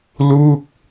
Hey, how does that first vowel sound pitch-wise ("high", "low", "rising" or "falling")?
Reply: falling